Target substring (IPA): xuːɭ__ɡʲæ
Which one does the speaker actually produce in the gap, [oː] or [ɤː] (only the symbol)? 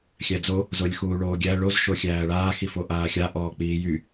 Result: oː